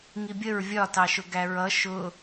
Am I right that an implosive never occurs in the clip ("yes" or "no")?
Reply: yes